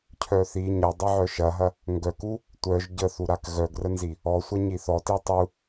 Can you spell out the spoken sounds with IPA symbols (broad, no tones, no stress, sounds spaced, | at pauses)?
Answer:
cʰ œ θ i ɲ ɐ dˤ e ʕ œ ʃ ɐ ɦ ɐ | ŋ ɡ œ k u | tʷ œ ʒ ɟ ə θ u ɾ a k ɣ œ ɡ r ə n z i | ɔ sʷ ɐ ɲ i θ ɔ t i tˤ u